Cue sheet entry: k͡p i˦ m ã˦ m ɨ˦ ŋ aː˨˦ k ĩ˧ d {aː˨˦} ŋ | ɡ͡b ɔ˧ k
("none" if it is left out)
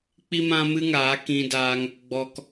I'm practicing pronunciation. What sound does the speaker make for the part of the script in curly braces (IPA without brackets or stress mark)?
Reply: aː˧